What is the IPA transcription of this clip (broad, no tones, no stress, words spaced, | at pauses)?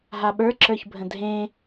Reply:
ɦaɓə˞ǁə˞çbʱə̃ dʱẽ